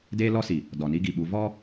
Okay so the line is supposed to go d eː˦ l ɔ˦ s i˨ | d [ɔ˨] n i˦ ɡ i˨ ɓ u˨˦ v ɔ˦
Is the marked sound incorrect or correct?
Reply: correct